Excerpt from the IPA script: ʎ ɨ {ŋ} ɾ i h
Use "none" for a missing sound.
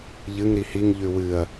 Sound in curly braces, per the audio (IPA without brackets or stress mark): ŋ